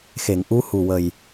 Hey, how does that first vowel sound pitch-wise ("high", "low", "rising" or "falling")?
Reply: low